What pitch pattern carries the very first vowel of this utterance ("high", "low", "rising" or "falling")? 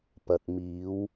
low